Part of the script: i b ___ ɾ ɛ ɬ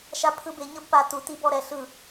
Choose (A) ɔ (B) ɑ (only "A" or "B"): A